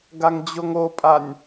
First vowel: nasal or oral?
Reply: oral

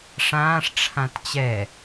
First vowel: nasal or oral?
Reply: nasal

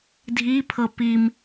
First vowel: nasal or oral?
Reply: oral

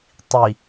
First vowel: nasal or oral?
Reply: oral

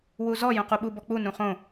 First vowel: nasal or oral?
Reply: oral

